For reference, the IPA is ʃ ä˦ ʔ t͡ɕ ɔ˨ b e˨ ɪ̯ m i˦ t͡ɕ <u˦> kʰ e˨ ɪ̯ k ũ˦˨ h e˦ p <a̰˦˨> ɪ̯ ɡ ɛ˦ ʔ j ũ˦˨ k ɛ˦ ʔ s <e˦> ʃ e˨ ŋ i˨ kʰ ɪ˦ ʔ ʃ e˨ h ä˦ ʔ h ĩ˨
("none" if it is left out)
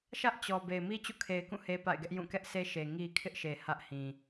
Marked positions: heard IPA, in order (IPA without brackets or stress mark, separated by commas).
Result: ṵ˦˨, a̰˦˨, e˦